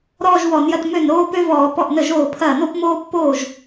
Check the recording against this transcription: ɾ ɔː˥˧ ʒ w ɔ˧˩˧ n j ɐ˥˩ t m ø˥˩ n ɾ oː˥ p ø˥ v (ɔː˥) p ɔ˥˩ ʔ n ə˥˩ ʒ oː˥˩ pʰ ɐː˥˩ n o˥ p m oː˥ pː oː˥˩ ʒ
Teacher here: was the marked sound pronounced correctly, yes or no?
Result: no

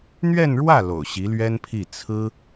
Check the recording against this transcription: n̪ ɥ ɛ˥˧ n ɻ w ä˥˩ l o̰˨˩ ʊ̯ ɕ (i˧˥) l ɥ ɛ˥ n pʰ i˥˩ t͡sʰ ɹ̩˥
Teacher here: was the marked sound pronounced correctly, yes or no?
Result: yes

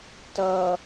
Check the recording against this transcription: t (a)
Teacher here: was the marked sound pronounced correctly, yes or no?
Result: no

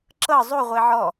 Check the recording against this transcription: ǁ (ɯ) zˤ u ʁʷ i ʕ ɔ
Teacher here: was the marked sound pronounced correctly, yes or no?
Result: no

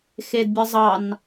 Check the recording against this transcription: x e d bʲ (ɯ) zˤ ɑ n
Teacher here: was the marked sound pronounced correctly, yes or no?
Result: yes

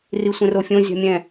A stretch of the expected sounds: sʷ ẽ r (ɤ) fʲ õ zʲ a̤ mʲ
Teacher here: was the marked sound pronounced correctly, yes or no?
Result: no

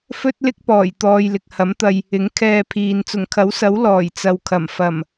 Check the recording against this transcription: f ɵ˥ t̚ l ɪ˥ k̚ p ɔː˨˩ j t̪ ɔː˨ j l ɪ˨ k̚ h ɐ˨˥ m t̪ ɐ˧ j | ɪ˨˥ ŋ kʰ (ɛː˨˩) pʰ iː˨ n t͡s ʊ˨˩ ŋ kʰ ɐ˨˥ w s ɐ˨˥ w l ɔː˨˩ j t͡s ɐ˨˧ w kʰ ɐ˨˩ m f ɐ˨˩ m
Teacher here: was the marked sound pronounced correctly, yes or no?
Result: no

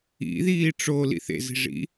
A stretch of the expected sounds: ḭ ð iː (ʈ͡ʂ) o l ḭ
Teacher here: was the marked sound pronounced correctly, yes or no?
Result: yes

